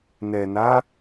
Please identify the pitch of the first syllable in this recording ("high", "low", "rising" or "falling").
low